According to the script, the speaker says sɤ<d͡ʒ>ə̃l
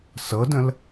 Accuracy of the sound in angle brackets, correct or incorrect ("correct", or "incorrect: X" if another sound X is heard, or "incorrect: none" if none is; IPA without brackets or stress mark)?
incorrect: d